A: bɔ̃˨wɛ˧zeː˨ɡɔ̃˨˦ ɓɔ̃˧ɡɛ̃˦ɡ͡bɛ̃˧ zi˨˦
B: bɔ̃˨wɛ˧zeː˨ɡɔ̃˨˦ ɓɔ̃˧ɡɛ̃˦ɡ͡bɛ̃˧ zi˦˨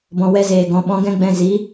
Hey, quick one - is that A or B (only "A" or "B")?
A